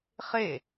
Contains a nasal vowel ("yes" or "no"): no